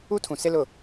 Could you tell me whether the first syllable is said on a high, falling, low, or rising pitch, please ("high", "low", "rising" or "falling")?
high